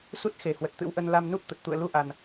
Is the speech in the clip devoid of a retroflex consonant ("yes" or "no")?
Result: yes